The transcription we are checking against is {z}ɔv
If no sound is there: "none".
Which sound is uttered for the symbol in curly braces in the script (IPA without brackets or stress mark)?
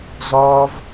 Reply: z